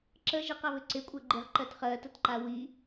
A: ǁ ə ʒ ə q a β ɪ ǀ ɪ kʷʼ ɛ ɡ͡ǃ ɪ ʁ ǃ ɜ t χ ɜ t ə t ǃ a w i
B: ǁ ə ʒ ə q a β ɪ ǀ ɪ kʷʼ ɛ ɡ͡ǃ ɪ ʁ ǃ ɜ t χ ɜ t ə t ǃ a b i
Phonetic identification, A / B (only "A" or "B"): A